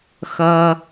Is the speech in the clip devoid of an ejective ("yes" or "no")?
yes